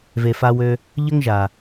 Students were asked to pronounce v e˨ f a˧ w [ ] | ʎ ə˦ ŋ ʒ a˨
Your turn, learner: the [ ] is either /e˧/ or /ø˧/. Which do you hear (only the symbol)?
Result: ø˧